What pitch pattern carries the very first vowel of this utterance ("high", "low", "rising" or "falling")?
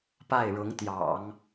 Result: falling